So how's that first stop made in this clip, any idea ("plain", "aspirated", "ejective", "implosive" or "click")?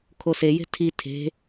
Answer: aspirated